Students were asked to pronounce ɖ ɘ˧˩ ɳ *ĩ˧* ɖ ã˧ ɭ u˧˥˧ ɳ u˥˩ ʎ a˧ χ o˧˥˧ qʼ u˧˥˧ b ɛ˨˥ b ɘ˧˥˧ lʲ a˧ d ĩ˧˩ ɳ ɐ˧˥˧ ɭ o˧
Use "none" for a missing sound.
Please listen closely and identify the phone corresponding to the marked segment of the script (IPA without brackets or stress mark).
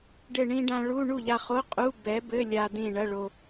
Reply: ĩ˧